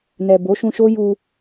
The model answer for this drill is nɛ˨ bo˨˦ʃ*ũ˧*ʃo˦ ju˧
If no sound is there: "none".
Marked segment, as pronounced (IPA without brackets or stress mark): ũ˧